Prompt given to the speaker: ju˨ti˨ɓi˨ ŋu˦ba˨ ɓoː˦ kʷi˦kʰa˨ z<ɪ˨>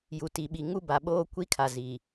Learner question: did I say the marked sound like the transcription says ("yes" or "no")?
no